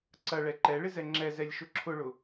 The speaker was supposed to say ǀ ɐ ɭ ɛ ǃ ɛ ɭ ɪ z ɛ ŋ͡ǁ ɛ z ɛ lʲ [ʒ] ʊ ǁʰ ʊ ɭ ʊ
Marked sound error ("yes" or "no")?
yes